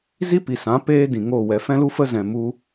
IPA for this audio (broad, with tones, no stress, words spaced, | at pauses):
zi˦pi˨sã˨˦ peː˦dĩ˨ŋoː˦˨ wɛ˨fɛ̃˦lu˦ fə˦zɛ̃˨ mu˦